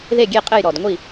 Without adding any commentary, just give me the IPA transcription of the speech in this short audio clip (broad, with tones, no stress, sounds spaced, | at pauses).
ð e˥˩ ɡʲ e˥˩ qʼ ɘ˥˩ j ɾ ɔ˨˩ d ŋʷ i˥˩